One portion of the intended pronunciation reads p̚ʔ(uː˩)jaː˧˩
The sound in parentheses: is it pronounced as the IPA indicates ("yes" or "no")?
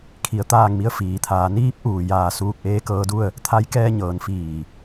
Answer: yes